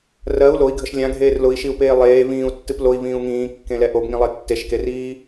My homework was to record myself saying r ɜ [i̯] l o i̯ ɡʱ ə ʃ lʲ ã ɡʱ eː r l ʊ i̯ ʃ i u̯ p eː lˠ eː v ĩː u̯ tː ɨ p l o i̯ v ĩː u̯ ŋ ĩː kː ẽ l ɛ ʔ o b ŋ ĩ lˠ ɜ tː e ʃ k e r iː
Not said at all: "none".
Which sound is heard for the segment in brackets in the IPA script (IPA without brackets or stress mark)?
u̯